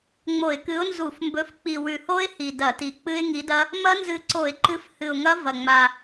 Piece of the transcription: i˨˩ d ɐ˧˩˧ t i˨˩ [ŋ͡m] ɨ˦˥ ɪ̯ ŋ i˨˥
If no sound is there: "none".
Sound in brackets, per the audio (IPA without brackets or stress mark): k͡p